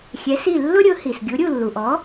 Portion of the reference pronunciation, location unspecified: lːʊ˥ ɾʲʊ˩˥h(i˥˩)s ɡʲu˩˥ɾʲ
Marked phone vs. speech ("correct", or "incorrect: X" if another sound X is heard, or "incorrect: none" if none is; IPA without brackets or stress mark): incorrect: i˩